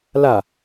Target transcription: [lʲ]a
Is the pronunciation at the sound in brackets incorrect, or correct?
incorrect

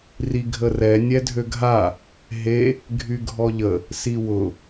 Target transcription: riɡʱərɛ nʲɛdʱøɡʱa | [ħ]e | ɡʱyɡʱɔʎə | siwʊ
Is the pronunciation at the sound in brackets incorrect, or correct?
incorrect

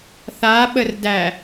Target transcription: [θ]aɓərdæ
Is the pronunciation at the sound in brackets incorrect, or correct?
correct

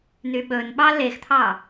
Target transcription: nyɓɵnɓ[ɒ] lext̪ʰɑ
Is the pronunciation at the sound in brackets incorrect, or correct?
incorrect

